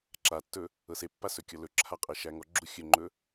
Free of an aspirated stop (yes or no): no